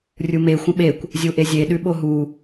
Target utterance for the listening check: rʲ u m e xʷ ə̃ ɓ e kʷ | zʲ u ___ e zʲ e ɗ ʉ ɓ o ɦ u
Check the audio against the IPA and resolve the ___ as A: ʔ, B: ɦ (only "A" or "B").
A